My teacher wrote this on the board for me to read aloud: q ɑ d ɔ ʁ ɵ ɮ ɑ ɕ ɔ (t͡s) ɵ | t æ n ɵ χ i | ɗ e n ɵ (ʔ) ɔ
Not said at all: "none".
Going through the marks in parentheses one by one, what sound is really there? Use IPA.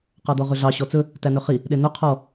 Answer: t͡s, qʰ

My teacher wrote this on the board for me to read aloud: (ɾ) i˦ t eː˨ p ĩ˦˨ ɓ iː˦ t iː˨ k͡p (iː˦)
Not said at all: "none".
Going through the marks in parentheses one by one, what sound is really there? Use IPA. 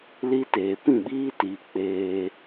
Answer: l, eː˦

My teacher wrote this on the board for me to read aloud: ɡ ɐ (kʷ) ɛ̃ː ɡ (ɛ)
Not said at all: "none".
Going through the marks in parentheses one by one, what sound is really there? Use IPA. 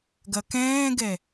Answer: k, ɛ

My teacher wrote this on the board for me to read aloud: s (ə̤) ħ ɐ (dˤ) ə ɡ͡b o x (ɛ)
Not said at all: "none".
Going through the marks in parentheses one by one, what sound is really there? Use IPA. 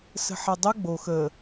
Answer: ə̤, dˤ, ə

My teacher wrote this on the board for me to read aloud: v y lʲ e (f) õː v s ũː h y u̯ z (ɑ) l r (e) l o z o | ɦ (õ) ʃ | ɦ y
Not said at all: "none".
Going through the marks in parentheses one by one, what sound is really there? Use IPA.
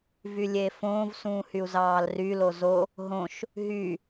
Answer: f, ɑː, y, õ

